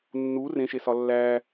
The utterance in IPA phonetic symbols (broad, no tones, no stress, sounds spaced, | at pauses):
nː u r ẽ ʃ e s ɒ lː æ